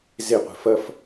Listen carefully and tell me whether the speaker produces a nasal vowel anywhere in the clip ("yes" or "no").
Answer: no